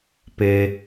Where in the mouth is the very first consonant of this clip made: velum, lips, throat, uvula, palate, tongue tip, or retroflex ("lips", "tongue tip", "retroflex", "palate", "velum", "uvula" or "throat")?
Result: lips